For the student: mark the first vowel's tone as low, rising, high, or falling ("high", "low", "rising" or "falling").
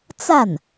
falling